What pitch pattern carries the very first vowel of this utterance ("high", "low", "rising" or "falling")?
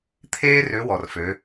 high